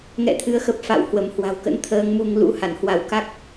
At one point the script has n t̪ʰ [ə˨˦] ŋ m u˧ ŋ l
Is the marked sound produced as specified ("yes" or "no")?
no